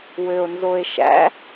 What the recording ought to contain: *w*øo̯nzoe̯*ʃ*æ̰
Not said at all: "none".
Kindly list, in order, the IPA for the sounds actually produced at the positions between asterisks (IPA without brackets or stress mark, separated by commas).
w, ʃ